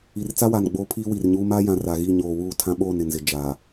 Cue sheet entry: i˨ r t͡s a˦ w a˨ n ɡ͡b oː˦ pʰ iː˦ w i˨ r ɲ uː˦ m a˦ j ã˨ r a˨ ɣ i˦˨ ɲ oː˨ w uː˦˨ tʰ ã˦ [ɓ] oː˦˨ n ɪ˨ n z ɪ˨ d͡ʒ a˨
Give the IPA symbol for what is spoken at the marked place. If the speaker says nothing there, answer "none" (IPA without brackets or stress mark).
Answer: ɓ